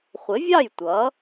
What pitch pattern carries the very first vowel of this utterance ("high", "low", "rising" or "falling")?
rising